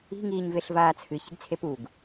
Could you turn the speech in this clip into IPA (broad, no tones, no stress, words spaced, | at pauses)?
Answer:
i̤ ŋiːɲveɬvaːt͡sʰɨ çi̤ɡt͡sʰepuɡ